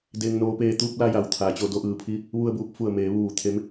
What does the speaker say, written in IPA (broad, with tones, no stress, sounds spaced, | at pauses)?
d eː˩ ŋ n oː˩ p eː˧˩ t̪ uː˧ p̚ l a˧ j a˩ w t̪ʰ aː˩ t͡ɕ o˧ d o˧ ʔ ɯː˩ pʰ i˧˥ | ʋ u˧ ə̯ b uː˧ p̚ f u˧˩ ə̯ m eː˩˧ ʋ uː˧˩ t̪ʰ e˧˥ m